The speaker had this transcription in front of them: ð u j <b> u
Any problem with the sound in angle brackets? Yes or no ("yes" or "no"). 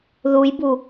no